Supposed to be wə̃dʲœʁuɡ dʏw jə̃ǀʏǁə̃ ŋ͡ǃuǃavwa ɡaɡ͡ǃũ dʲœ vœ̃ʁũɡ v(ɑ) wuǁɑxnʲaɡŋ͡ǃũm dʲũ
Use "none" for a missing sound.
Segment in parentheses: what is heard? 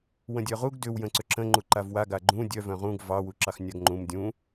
ɑ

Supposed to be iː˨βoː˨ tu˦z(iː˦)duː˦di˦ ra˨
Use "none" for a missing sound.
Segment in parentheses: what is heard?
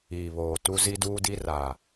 i˦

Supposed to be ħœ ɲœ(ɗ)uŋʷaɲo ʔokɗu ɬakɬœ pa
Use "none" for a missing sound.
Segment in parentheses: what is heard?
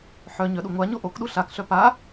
ɗ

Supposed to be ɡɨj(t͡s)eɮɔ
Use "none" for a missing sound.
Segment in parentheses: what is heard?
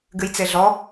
t͡s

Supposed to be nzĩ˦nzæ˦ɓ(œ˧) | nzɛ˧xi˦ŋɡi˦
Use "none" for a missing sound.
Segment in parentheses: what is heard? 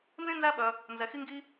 œ˧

